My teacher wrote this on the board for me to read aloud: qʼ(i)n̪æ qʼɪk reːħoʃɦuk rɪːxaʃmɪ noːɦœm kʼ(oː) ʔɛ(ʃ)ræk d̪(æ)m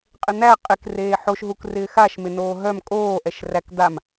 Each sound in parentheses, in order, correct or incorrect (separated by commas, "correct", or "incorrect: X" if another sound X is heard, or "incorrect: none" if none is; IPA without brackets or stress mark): incorrect: ɪ, correct, correct, incorrect: a